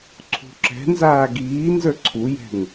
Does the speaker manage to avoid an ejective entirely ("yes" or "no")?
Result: yes